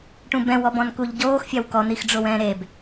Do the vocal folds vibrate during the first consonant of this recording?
no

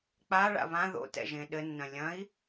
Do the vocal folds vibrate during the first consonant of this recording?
no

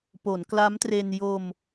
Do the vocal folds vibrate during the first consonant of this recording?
no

